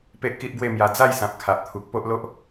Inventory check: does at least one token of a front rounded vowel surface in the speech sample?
no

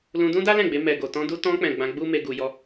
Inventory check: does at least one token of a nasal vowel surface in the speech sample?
yes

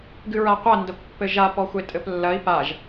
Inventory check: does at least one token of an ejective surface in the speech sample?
yes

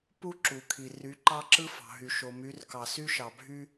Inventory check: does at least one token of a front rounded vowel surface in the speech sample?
yes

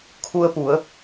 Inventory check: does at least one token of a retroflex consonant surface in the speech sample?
no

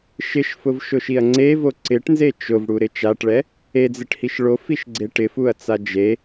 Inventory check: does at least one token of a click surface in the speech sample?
yes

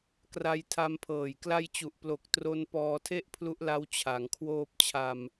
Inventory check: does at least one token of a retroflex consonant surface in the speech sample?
no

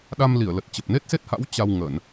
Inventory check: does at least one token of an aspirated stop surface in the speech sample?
no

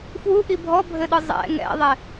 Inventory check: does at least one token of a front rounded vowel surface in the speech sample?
no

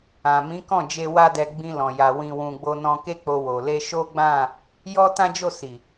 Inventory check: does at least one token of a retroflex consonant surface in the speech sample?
no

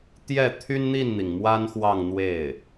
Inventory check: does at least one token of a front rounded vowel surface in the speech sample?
yes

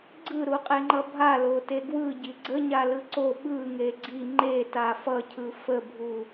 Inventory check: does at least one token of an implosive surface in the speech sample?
yes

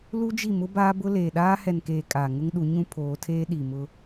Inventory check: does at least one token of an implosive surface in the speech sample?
yes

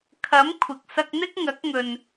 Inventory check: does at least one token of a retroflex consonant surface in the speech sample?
no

